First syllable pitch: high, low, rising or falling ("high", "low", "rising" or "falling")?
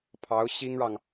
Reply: rising